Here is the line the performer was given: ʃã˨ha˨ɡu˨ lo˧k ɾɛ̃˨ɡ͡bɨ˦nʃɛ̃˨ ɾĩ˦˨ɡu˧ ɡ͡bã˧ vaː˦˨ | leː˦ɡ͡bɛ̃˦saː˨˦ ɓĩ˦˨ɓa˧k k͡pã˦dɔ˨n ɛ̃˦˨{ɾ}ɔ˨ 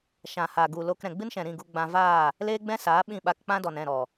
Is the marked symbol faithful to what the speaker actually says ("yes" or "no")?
yes